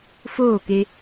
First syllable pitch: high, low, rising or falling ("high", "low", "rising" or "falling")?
falling